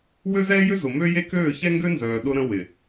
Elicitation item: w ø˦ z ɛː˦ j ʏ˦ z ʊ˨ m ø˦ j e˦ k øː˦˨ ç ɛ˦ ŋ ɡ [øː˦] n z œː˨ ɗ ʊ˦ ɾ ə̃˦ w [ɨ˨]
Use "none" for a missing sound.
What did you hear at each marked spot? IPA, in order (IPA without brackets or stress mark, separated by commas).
ø˦, ɪ˨